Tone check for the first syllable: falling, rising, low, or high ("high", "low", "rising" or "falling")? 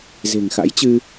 low